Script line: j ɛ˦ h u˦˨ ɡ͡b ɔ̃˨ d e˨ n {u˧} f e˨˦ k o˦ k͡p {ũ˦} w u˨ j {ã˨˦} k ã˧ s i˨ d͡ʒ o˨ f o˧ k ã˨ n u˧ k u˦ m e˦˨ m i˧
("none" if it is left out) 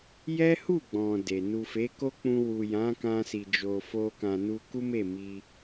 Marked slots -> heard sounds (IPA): u˨, ũ˧, ã˨˦

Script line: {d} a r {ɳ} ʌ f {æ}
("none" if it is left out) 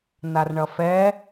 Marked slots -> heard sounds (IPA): n, ɳ, ɛ

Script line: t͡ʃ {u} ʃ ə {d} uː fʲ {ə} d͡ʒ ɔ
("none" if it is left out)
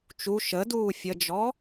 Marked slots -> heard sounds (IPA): u, d, ə

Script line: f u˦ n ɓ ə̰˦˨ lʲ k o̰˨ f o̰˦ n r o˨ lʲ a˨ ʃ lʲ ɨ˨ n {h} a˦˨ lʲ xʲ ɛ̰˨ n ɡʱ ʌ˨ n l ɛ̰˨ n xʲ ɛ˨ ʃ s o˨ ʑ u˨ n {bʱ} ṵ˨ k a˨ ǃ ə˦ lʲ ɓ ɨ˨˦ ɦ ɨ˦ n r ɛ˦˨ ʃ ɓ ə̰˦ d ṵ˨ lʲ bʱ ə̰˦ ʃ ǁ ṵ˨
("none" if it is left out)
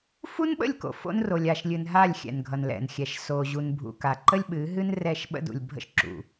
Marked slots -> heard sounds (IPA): ɦ, bʱ

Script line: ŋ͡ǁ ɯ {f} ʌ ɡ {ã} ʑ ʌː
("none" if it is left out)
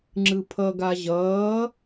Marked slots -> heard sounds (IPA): pʰ, a

